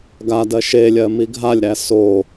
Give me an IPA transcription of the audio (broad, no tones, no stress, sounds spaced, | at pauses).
ɡ a d ɜ ʃ e lʲ ɜ m i ɡʱ a lʲ ɾ æ s o